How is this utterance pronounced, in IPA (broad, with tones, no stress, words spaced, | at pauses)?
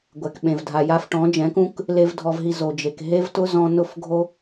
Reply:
ɡʷɛ˨k ɓẽ˨vdʱa˨ ja˧fʈɔ̃˨˦ d͡ʒɛ̃˨˦kũ˦k | le˦vdʱɔ˧vɦi˧ zo˨d͡ʒe˨k ɦe˦vtʊ˦ zɔ̃˦ nʊ˦fɡʱo˦